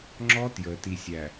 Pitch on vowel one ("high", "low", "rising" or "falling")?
high